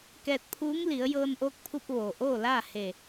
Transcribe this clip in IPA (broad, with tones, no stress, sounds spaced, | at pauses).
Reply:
k ɛː˧ t̚ pʰ uː˧˥ ŋ l i˩˧ ə̯ j ɤː˧ n ʔ oː˧˥ k̚ pʰ u˧ p̚ ʋ oː˩ ʔ oː˥˨ l aː˥˨ h e˧˩